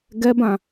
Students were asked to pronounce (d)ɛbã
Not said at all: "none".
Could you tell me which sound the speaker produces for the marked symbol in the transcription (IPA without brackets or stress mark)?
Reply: ɡ